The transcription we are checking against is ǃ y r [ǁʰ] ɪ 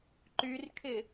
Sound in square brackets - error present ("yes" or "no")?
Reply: yes